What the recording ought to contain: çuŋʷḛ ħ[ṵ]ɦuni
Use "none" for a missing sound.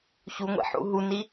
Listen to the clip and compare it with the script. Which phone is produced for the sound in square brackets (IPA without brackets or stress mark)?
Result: ṵ